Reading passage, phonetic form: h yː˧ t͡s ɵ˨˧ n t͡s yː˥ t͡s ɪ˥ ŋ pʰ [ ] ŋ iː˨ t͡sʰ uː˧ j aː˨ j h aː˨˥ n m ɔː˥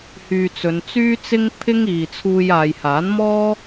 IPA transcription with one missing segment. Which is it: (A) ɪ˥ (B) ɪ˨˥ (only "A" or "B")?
A